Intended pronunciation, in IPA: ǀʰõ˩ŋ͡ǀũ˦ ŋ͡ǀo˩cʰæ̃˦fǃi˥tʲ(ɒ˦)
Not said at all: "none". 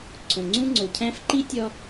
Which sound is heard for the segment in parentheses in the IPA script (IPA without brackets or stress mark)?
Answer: ɒ˦